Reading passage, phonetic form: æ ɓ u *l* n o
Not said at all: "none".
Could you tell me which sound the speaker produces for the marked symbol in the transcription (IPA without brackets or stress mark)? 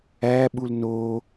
l